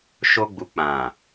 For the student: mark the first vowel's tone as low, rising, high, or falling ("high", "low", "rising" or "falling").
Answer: high